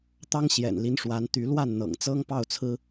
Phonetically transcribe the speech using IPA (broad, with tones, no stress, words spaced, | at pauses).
t̪ɑ˥ŋɕjɛ̰˨˩nli˧˥nʂwa˧˥n t̪y˧˥ lwa˥˩nn̪ɤ̰˨˩ŋ t͡sɤ˥ŋ pɑ˥˩ʊ̯t͡sʰɹ̩˥